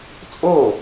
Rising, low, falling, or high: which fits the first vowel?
falling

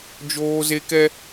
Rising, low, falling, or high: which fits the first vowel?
high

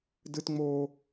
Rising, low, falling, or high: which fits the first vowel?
high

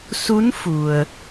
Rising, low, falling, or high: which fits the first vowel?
rising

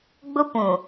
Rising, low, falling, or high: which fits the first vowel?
high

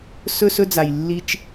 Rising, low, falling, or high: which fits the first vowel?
high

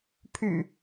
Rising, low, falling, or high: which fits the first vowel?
low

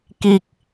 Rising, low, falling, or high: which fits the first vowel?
low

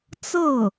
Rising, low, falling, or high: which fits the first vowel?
falling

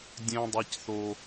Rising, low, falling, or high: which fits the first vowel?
high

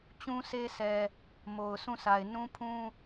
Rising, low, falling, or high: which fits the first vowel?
high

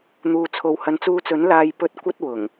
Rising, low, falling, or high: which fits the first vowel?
low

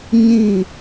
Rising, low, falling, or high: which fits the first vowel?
falling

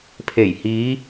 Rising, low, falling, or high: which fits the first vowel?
low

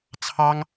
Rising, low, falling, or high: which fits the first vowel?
high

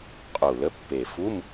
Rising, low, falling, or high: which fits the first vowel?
low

